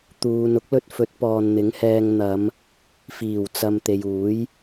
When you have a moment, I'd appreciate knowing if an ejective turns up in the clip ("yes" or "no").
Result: no